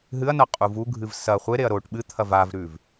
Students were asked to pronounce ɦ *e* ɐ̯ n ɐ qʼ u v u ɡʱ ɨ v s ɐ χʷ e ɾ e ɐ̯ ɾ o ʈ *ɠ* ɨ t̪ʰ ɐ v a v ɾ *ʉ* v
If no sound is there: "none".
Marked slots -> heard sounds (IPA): ɨ, ɓ, ʉ

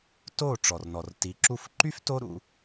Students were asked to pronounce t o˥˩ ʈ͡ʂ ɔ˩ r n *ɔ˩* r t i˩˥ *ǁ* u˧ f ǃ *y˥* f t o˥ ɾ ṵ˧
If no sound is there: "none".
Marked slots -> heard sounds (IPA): ɔ˩, ǁ, y˥

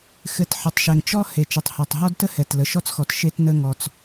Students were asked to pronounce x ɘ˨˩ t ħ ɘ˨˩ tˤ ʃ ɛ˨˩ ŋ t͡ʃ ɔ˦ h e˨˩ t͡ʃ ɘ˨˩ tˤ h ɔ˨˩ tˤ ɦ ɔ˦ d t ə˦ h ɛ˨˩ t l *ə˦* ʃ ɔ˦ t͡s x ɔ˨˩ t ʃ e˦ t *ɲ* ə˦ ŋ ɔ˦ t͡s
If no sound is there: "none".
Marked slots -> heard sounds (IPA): ə˨˩, n

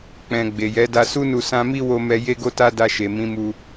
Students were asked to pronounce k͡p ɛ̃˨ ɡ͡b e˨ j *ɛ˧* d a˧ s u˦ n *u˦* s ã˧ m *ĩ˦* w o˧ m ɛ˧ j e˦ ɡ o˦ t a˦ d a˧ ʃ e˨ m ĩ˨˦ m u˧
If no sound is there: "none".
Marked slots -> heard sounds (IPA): ɛ˨˦, u˦˨, i˦

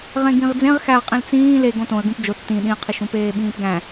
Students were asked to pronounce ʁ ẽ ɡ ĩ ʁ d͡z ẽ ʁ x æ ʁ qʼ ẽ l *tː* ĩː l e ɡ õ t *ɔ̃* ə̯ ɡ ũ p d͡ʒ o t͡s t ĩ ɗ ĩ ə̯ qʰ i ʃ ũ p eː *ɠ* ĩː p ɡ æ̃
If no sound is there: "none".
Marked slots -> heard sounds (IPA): t͡s, õ, ɓ

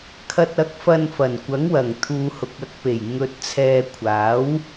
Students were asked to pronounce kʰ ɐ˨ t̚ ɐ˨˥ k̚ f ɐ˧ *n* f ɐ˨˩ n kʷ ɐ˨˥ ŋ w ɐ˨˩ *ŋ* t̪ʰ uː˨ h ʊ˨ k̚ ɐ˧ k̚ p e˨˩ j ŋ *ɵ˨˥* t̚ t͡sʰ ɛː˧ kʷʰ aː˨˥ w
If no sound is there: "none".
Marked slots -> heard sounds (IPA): n, ŋ, ɵ˧

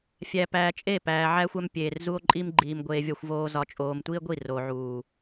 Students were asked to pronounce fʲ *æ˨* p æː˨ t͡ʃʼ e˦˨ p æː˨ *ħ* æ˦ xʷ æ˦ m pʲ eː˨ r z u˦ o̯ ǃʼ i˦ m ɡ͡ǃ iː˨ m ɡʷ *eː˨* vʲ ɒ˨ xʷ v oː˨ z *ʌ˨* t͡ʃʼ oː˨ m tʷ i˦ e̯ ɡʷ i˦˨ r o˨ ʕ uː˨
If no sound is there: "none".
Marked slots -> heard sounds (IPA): æ˨, ʕ, eː˨, ɒ˨

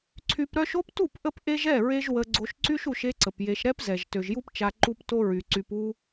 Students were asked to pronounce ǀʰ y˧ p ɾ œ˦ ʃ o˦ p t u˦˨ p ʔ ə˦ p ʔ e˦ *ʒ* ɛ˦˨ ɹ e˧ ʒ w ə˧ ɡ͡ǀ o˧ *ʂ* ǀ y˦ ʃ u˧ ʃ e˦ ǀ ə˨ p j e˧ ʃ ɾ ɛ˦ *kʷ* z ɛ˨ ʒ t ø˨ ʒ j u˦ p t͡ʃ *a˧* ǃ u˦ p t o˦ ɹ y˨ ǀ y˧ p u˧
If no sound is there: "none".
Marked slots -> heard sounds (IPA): ʒ, ʃ, p, a˧

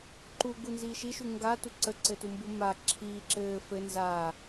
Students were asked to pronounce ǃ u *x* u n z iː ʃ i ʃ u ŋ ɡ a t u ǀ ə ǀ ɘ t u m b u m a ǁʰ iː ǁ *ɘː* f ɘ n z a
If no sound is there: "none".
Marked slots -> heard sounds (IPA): ɡ, ɘː

